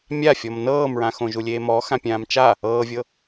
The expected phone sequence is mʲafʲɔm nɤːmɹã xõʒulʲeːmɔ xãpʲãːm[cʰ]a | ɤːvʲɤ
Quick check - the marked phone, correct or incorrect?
incorrect